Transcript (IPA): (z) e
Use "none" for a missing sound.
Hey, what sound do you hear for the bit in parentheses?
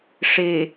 ʂ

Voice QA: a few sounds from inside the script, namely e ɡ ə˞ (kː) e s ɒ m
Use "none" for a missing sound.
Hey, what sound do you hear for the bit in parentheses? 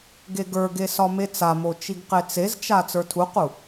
ɡ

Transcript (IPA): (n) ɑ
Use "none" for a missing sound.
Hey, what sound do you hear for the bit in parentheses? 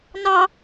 n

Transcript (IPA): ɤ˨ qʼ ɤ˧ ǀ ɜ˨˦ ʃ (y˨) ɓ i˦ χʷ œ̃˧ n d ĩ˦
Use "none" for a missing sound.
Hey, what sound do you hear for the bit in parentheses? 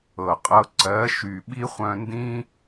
y˨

